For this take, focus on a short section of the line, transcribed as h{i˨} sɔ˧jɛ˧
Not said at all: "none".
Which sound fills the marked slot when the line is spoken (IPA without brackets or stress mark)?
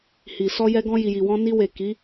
i˨